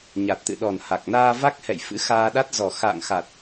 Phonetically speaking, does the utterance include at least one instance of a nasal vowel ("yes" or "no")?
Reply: no